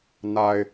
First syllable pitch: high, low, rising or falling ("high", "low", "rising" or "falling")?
low